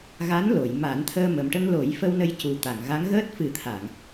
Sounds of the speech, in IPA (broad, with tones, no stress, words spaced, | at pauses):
ɣa˧˥nlo˨˩˨jma˨˩˦n t̪ʰəː˧ mə˨˩mʈə˧ŋlo˨˩˦jfə˧w nə˧jcu˨˩t̪a˨˩˨ŋɣa˧˥ŋ ɣəː˦˥t̚ fɨ˨˩˦t̪ʰa˨˩˨ŋ